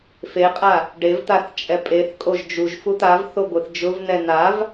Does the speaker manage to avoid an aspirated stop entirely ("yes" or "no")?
yes